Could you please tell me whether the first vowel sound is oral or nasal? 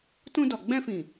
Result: nasal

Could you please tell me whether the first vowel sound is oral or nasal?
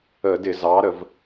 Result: oral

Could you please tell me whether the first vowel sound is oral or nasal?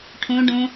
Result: nasal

